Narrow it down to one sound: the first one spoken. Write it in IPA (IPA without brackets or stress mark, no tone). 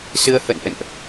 s